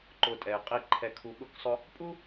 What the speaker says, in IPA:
ǃ ʊ˨ tʼ ɛ˩ ɪ̯ qʼ i˨ ǃʰ ɛ˨ kʰ u˨ ɠ ʊ˦ k sˤ ʊ˦ | pʼ u˥

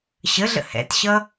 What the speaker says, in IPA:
ɕ ə ɮ ə̰ h ɛ̰ t ɕ ʌ

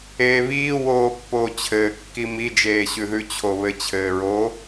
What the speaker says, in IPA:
eː β iː w oː pː oː t͡ɕʰ ɘː kː i m i d͡ʒ eː ɕ ʉ ð ʉ t͡ɕʰ o β ɘ t͡ɕʰ ɘː ɹ o

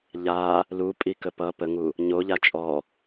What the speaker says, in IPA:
ʎ a | l u pʼ i k ə p ʌ p ə ŋ u | ɲ o ʎ a t͡ʃʼ ɔ

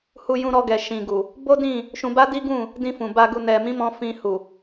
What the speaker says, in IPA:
h u˧ j ũ˧ ɾ ɔ˧ ɡ ɛ˨ ʃ ĩ˨ ɡ u˨ | b o˦ d ĩ˦˨ | ʃ ũ˧ b a˦ d i˦ ɡ ũ˦˨ | d ĩ˧ f ũ˨ b a˧ ɡ u˧ n ɛ˨ m ĩ˨˦ m ɔ̃˧ f ĩ˧ h u˨

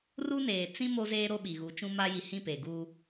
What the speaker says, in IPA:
r u˦ n eː˨ t͡s ĩ˦ m o˦ z eː˦ ɾ o˦ ɓ i˨ ɣ u˨˦ t͡ʃ ũ˦ m a˦ j i˨ h ĩ˦˨ p e˨ ɡ uː˦

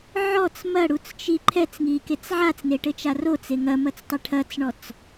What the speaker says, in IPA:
ʕ ɔ t͡s m ɐ ɽ u t͡s t͡ʃ i ǃʰ ɛ t͡s ŋ i k e t͡s ʕ a t͡s n e ʈ ɘ t͡ʃ a r o t͡s e ŋ ɐ m ɐ t͡s tˤ ɘ ʈʰ ɐ t͡s ɳ ɔ t͡s

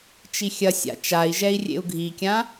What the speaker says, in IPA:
t͡ʃ i xʲ ɐ sʲ a̰ t͡ʃ a i̯ ʒ ɛ i̯ rʲ ḛ u̯ ɡʱ i kʲ ã

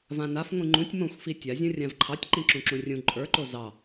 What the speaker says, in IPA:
v ã n a f ŋʷ ĩ ŋ͡ǃ ũ tʲ m õ xʷ f i tʲ a zʲ õ rʲ ã v ǃʰ ɑ tʲ ǃ ĩ ǁ ũ ǁ ũ rʲ ũ ǃʼ ə˞ ǃ o z ɑ

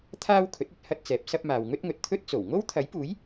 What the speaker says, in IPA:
t̪ʰ aː˥ w kʰ ɵ˨˥ t̚ ɵ˨˥ t̚ h ɐ˥ t̚ t͡s ɛː˨˥ p̚ s ɐ˥ p̚ m aː˨ w ŋ ɵ˥ t̚ ŋ ɵ˨ t̚ t̪ʰ ɵ˥ t̚ t͡s o˨˩ w ŋ o˥ w t̪ʰ ɐ˨˥ j p uː˨˥ j

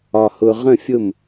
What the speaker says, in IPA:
ɒ˧˩ h ʊ˧ ʁ ə̃˥˩ fʲ ʊ˥˩ m

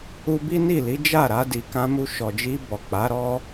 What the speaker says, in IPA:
u˧ b i˦ n i˦˨ l i˨˦ d͡ʒ a˦˨ ɾ a˧ d i˨ k ã˧ m u˧ ʃ ɔ˨ d͡ʒ i˧ b ɔ˨ k͡p a˨˦ ɾ ɔ˦

